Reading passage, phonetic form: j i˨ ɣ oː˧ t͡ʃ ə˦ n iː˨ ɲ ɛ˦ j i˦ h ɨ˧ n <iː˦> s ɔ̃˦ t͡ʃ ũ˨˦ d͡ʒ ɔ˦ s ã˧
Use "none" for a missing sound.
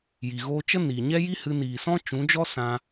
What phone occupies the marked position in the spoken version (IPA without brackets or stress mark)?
iː˨